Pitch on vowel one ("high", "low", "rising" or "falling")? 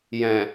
low